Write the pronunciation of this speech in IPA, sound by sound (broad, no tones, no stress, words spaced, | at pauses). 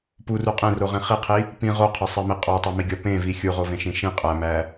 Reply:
puru qʼẽroʁĩ χiqʰi | pĩ ʁoqʰɒsˤemi qʼɒtˤomiɡʲɒ pẽvi xʲuʁovẽʃĩ ʃĩ qʼæmæ